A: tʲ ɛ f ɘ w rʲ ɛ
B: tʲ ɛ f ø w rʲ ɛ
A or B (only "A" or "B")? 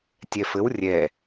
A